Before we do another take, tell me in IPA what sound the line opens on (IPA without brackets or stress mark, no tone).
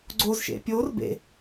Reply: ɡ͡ǀ